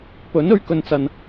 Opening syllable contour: rising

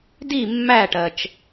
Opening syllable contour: falling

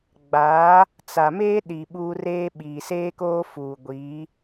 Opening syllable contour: rising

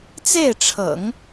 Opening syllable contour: falling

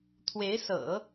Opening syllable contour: rising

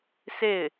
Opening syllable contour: falling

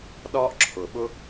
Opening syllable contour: high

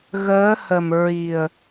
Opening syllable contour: rising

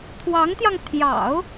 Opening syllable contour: rising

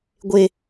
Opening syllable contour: high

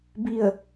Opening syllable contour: falling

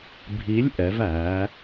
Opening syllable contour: rising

